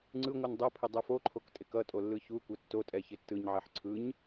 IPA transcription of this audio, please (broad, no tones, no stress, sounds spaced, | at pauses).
ŋ͡ǀ ɯ ŋʷ ɯ n dˤ o pʰ ɪ dˤ ɛ f o ǃʰ o k tʼ ɪ k ʌ tʼ o lː ɯ ç u kʷ ɛ tː o tʼ ɛ ç ɪ tː ɯ ɲ ʕ ɛ ħ ǀʰ ɯ ɲ